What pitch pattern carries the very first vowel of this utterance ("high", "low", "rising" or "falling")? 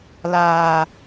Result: low